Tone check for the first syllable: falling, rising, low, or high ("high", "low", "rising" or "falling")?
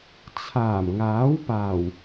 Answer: low